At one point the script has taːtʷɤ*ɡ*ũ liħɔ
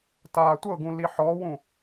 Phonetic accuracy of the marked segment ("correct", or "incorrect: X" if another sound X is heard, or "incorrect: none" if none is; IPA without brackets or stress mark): correct